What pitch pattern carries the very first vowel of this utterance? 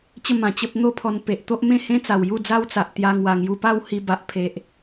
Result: falling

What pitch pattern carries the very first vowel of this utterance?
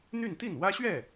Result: falling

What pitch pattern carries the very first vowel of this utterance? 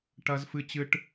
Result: high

